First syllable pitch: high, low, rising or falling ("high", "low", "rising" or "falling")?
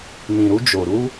low